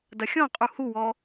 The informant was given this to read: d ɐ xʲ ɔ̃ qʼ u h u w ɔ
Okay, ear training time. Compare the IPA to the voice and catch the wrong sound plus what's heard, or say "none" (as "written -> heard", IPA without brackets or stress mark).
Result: none